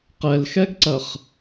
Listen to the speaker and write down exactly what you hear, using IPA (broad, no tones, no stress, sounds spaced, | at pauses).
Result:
q ɛ l x ɛ ɡ ǀ ɐ χ